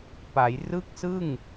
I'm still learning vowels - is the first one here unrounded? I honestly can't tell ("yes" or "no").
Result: yes